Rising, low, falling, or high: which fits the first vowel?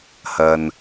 low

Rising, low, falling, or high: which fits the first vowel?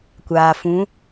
low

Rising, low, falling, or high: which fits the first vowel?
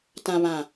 low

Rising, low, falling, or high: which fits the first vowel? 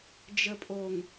low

